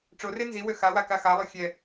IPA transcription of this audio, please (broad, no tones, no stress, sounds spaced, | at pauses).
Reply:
ʈ͡ʂ o r e n z i w ø x a w a k a x a lˠ o xʲ ɛ